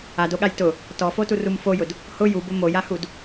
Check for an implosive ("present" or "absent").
present